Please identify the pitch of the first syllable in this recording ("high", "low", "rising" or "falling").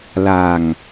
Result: low